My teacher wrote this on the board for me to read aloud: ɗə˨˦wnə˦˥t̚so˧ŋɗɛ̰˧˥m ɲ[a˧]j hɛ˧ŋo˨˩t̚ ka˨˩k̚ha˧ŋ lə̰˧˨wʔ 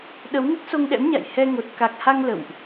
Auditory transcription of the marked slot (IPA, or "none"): a̰˧˨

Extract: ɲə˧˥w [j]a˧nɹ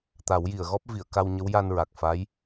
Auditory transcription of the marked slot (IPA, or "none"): j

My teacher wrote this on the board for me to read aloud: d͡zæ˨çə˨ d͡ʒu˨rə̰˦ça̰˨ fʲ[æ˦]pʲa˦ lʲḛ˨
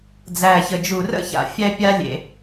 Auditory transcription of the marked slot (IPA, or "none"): æ˦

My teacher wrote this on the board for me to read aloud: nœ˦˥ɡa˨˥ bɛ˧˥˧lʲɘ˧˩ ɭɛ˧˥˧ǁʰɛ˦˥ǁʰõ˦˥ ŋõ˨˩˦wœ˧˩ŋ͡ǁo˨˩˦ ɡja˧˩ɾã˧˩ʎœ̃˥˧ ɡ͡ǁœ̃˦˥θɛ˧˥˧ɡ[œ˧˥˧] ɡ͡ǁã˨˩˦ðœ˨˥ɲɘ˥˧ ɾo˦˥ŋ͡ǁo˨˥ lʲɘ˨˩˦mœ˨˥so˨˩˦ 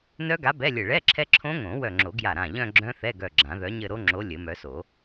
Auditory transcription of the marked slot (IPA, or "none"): œ˧˩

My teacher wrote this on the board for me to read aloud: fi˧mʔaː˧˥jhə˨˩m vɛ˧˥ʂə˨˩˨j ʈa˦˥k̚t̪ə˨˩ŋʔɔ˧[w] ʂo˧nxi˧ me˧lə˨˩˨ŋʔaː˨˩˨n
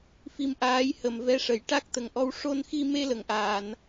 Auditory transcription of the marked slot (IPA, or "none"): w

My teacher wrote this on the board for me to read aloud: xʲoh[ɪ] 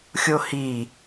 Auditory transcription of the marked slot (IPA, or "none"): i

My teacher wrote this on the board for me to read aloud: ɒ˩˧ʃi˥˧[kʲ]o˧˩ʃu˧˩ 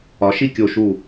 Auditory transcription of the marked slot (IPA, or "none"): kʲ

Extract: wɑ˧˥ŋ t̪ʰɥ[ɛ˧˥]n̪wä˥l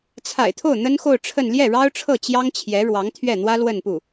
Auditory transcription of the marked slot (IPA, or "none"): ɛ˥˩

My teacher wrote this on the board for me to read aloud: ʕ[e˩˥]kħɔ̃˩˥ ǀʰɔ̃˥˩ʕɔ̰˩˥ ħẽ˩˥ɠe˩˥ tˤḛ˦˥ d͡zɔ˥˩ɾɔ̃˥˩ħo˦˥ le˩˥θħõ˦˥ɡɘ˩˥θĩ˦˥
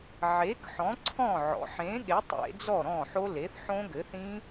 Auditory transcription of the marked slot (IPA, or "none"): e˩˥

